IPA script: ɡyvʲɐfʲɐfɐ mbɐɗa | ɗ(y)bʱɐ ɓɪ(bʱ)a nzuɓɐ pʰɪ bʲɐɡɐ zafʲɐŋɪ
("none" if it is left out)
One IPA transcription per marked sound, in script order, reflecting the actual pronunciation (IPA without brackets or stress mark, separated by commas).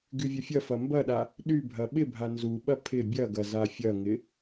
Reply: y, bʱ